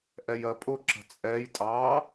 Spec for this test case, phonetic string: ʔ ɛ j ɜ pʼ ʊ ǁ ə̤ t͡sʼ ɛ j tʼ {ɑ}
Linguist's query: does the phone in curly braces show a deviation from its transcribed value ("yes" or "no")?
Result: no